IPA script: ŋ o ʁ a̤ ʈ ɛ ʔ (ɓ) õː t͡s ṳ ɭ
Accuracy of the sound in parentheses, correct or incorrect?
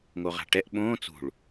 correct